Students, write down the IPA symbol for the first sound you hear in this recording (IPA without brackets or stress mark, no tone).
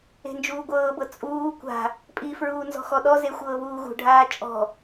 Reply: e̤